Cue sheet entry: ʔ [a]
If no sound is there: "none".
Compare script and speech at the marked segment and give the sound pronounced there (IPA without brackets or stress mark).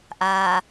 a